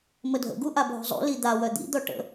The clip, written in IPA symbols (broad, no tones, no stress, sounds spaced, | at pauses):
m ə dʱ ə̰ ɡ u ʔ a bʱ o̤ zˤ ṵ l i d̪ a w œ d̪ ḭ d̪ ɔ ʈ ə̰